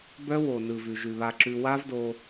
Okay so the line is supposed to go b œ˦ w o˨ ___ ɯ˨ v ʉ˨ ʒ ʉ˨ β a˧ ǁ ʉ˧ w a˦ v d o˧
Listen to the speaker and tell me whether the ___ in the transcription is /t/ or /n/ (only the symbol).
n